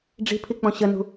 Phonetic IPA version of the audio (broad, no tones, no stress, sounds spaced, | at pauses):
ɖ͡ʐ i̤ pʰ i k͡p ɔ̃ ɕ ə n ṳ